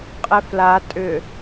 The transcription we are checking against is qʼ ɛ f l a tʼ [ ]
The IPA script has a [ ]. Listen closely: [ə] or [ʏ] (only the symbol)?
ʏ